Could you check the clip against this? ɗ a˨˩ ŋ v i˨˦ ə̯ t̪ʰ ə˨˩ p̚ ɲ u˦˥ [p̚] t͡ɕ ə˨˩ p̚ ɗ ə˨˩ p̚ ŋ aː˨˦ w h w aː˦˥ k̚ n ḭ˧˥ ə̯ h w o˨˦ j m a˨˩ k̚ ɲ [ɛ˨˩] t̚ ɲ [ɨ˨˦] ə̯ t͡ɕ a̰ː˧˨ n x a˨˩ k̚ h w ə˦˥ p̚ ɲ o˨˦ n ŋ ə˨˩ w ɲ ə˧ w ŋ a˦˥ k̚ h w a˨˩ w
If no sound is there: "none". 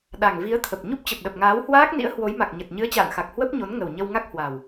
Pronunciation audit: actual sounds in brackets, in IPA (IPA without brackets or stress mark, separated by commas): p̚, ə˨˩, ɨ˨˦